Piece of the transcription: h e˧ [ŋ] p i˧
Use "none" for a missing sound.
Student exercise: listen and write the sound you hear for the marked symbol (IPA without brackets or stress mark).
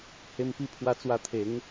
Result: m